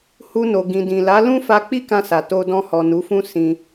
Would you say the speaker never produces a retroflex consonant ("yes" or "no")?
yes